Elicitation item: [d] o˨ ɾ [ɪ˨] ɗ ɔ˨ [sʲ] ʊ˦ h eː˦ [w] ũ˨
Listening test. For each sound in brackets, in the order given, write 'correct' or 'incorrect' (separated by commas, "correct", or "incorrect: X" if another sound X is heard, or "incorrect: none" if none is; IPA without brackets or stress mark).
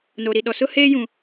incorrect: n, incorrect: i˨, incorrect: s, incorrect: j